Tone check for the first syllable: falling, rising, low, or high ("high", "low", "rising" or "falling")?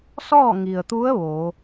falling